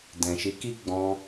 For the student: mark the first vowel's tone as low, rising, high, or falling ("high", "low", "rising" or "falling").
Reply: low